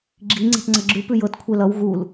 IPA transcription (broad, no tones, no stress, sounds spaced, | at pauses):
ɡ͡ǁ i ŋ͡ǀ e̤ p ŋ͡ǀ ʌ ɡ͡ǁ ʉ p ʉ j ɤ t kʷʰ e l ʌ w ɣ u l